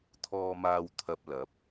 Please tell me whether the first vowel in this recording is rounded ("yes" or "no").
yes